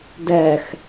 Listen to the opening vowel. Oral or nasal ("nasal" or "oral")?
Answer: oral